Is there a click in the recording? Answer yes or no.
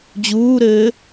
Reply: no